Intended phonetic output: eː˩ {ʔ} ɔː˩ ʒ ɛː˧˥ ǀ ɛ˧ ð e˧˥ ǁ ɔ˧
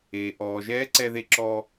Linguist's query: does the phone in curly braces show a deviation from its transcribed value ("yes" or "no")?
no